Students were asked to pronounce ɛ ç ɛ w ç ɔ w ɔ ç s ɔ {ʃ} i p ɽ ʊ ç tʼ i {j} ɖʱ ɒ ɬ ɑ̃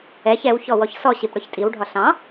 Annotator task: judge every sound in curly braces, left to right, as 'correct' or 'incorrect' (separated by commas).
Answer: incorrect, incorrect